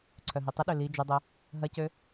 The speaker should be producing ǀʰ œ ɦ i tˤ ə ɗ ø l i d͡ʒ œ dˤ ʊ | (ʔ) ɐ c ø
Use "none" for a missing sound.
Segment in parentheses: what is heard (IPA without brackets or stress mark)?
ɦ